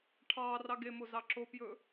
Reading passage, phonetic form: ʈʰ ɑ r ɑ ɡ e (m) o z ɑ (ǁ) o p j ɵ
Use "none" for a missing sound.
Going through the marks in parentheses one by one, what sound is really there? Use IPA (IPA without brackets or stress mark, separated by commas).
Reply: m, ǁ